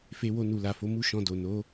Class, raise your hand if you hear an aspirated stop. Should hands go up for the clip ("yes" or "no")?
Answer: no